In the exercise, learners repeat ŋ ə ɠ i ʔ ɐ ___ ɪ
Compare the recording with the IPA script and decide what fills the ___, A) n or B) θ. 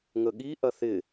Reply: B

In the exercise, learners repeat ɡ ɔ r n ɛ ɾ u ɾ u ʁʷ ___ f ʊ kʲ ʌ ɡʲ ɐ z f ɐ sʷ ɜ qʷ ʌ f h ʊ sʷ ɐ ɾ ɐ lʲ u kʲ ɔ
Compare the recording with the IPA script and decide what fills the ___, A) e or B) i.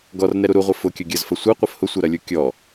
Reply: A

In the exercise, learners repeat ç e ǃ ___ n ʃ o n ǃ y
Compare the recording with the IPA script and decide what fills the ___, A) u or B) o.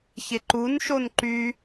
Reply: A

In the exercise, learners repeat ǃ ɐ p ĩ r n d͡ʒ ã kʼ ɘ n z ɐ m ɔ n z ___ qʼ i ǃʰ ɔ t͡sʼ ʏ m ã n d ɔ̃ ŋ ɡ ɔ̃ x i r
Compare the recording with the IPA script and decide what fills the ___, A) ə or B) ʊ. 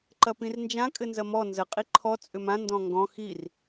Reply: A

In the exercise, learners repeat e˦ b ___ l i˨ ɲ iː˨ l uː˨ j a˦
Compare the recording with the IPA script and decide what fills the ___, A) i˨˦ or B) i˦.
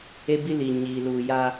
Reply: B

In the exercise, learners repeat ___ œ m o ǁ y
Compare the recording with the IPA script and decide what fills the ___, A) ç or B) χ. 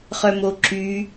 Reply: B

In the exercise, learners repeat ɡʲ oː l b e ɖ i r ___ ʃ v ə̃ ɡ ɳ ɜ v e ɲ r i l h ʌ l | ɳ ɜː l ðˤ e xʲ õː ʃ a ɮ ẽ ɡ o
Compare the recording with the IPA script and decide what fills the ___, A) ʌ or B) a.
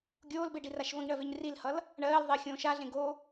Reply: B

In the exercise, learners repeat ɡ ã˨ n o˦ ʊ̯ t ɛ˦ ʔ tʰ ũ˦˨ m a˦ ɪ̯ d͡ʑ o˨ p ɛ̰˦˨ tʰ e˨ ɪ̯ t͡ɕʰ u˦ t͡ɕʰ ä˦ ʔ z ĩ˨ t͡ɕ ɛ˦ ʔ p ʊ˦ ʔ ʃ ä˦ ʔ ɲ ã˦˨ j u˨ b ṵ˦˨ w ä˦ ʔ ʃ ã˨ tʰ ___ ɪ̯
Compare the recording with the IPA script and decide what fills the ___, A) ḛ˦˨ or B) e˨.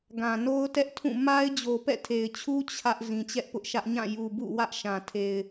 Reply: B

